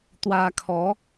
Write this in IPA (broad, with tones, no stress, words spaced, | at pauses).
t̪wa˧kʰɔ˨˦